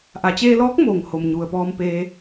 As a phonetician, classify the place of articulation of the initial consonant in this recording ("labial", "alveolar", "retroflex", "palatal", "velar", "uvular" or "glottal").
glottal